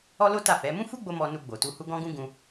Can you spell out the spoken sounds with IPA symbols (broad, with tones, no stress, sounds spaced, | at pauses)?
ɔ˦ l o˦ t a˦˨ f ɛ˨˦ m ũ˦ f u˦ ɡ͡b o˦ m ɔ˧ n u˧ ɡ͡b o˨ t u˧ h u˦ ɡ ɔ̃˦ ɡ ũ˦ ɡ ũ˦